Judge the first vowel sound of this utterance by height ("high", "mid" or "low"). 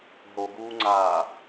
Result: mid